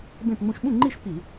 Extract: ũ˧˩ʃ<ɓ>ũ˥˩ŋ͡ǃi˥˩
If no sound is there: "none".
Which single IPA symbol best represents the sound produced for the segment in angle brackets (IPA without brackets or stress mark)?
ɓ